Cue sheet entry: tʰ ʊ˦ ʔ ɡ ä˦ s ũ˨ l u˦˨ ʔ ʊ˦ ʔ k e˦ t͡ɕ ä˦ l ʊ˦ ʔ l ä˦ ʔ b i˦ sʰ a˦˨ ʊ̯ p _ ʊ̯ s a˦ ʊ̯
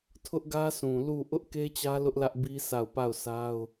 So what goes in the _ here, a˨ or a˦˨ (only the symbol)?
a˦˨